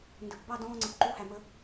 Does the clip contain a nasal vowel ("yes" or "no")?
yes